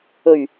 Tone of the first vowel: low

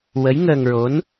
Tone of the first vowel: rising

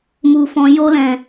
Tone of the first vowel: low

